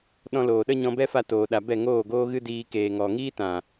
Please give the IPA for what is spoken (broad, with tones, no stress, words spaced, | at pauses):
ɗɔ̃˧loː˨ɗə˦ ɲɔ̃˧bɛ˦fa˧ toː˨ɗa˨bɛ˦˨ ŋoː˦˨ɡoː˦ɣɨ˦diː˧ keː˨ ŋɔ˨ŋiː˦tã˨